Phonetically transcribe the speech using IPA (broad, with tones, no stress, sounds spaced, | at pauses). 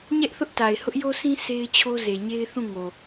ɲ ɛ˦ ʔ θ ʊ˦ ʔ t a˨ ɪ̯ h ʊ˦ ʔ j o˦ s ĩ˦ sʰ e˦ ɪ̯ t͡ɕʰ o˦ z e˨ ɲ e˦ ɪ̯ θ ũ˦˨ ŋ o˨